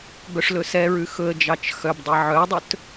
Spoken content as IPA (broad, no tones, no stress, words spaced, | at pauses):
bœʂlɵsɛɹʉ xɵə̯d͡ʒɑt͡ʃ xœbdˤɛ ʕœdˤɵt